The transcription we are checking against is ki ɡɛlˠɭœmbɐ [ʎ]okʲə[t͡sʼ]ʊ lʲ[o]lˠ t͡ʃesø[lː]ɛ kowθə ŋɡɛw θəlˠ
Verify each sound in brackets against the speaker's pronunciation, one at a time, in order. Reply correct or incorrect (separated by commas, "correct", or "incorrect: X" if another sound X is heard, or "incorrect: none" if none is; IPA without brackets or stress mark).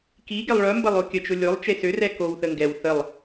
incorrect: lˠ, incorrect: t͡ʃ, correct, incorrect: r